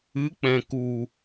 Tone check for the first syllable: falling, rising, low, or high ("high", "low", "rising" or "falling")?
rising